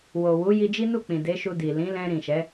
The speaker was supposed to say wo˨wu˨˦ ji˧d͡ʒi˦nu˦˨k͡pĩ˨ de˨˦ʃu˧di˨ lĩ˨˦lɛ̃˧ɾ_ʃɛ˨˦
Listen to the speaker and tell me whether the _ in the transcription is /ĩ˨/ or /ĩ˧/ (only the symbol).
ĩ˨